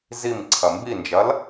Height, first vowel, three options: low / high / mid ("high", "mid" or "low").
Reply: high